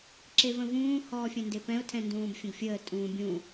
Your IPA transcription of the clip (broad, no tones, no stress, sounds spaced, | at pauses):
ǁ e v ə̃ v ũː h ɔː fʲ ɛ̃ n d e p ɛ̃ ʊ̯ tʰ ɛ̃ n d ũː b fʲ ə̃ ɡ fʲ əː tʼ ũː bʲ ũ